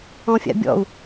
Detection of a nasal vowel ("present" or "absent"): present